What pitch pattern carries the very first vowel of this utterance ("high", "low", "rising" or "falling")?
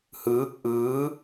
rising